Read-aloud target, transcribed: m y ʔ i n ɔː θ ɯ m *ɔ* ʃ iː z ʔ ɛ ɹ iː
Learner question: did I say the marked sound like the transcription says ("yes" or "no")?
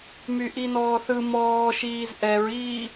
no